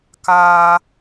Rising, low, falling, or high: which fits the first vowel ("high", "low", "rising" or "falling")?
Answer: high